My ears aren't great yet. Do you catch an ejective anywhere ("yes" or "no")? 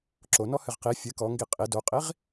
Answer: yes